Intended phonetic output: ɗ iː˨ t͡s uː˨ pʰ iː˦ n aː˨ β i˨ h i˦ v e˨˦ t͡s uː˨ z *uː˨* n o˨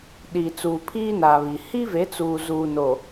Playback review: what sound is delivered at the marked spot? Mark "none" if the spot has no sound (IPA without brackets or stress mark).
uː˨